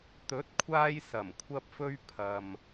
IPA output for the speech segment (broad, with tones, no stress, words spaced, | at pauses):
t̪ɵ˨˥t̚kʷʰaː˧j sɐ˨˩mkʷʰɐ˧p̚fɵ˧ɥ pʰɐ˨m